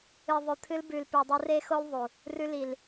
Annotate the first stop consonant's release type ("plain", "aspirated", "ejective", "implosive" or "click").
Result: aspirated